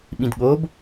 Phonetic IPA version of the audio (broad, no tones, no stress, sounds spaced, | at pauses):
ɓ ĩ d ɠ o b